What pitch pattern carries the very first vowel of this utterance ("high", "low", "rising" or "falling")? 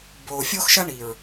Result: low